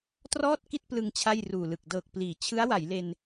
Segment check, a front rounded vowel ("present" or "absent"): absent